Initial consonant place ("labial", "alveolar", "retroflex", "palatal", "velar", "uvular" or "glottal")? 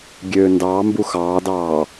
velar